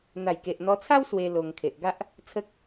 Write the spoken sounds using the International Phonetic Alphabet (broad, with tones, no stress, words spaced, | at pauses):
n̪a˨˩jke˨ʔn̪ɔ˧t͡sʰa˦w swe˧ lo˧ŋ kʰe˨ʔɡa˦ʔ | t͡sʰə˦k̚